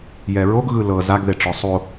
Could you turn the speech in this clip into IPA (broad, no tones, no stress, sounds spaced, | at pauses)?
j ɛ ɹ o ɡ ɣ ɯ l ɤ z a ɡ ð e ʈ͡ʂ ɔ sˤ o